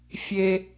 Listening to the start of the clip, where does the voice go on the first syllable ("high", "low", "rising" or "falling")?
high